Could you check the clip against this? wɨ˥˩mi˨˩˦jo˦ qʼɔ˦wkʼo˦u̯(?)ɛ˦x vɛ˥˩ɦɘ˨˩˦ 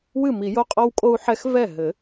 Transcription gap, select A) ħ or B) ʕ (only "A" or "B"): A